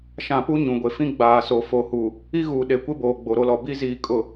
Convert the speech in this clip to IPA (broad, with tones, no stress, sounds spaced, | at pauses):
ʃ ã˨ p u˦ ɲ ũ˨ ɡʷ e˨ f ĩ˦ ɡ͡b aː˨ s o˨ f o˨ h u˨ | i˦ ɣ uː˨ ɗ e˨ kʷ ɪ˦ b oː˨ ɡ͡b o˨ ɾ o˦ l ɔ˨ b i˦ z iː˨ kʼ ʊ˨